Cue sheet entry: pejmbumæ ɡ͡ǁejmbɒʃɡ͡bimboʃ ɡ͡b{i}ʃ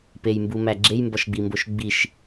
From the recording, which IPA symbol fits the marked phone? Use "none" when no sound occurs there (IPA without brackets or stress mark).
i